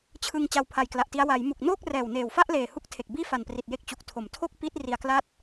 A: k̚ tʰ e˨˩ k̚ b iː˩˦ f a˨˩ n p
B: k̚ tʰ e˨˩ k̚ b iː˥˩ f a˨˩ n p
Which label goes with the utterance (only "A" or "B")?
B